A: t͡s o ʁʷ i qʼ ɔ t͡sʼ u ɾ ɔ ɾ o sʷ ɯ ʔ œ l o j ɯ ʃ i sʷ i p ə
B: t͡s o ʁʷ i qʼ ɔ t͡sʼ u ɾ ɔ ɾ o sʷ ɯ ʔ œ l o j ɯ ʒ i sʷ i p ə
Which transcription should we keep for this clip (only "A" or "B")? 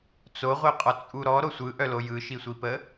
A